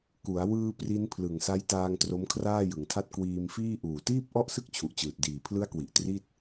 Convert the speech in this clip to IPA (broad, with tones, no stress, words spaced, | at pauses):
ku˩˦a̯ wɯː˧ pri˦˥npʰlɯ˨˩ŋsa˦˥jtaː˧ŋ tro˦˥mkʰraː˥˩jɯ˩˦ŋtʰa˥˩t̚ kwiː˧mfiː˥˩ ʔuː˨˩tiː˥˩p̚ ʔɔ˥˩ʔsɯ˥˩k̚t͡ɕʰu˨˩ʔt͡ɕɯː˨˩t̚ diː˨˩pʰlɯ˦˥a̯kwi˨˩ʔ tri˥˩t̚